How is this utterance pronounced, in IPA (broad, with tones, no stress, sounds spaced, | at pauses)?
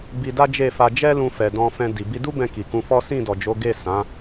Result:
b i˧ d a˦ d͡ʒ e˦˨ f a˧ d͡ʒ ɛ˦ l ũ˧ f ɛ˨ d ɔ̃˧ f ɛ̃˧ d i˨ b i˧ d u˦ b ɛ̃˧ k i˨ k ũ˧ f ɔ˦ s ĩ˦˨ d ɔ˨ d͡ʒ o˨˦ ɡ e˦˨ s ã˨˦